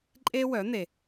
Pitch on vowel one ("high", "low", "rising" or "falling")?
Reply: high